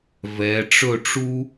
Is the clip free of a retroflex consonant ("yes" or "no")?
no